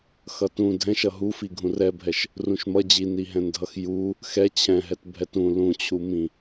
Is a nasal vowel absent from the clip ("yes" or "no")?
no